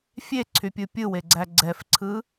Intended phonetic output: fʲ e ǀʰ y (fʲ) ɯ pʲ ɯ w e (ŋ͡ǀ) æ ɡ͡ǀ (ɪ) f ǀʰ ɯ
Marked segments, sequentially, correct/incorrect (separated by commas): incorrect, incorrect, incorrect